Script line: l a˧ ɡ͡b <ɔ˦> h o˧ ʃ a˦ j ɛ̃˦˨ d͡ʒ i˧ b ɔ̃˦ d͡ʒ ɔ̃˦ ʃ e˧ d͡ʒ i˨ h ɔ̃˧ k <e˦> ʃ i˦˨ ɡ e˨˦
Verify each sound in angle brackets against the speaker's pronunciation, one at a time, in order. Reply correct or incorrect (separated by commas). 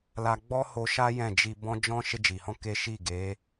correct, correct